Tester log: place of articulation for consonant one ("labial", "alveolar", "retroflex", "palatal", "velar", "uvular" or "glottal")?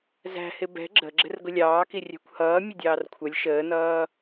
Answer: alveolar